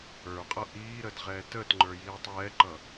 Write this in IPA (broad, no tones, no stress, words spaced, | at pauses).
ə˞qʼʌ ʔiːɾəd ʁɛːtəːtŋ͡ǃə˞ jiːtˤjɛǃʌ